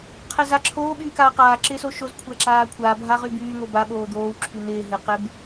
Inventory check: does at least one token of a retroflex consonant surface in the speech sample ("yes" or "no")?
no